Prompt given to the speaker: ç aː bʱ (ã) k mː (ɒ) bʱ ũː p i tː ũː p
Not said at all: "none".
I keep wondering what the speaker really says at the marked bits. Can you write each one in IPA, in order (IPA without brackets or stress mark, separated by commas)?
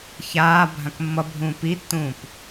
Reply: ã, ʌ